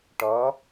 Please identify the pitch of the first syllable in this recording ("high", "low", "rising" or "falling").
rising